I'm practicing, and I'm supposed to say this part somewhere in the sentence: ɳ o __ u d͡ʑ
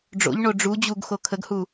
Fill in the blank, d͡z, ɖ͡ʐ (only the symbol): ɖ͡ʐ